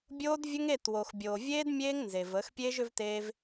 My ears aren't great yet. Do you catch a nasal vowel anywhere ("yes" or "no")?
no